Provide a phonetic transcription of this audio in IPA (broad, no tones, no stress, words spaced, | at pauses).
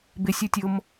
bɪsʲu tʲʊm